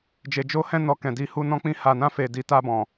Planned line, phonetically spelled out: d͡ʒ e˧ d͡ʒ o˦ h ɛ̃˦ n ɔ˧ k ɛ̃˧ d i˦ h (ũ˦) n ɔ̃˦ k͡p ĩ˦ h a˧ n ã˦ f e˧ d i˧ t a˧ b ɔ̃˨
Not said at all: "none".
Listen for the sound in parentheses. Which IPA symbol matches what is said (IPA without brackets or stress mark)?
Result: u˦